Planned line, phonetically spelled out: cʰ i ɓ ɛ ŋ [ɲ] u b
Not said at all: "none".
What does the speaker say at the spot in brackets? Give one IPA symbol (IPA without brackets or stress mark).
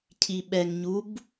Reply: ɲ